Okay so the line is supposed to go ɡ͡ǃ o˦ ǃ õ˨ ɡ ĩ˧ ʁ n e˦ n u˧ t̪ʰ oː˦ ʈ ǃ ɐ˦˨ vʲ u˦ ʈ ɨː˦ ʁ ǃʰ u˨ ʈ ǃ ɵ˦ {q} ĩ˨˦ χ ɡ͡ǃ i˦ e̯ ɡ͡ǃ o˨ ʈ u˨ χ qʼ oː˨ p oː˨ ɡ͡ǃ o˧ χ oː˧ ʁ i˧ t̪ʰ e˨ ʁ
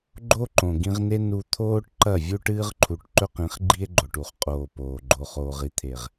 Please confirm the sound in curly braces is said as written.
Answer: yes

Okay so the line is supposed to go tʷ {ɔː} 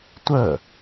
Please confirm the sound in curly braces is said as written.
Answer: no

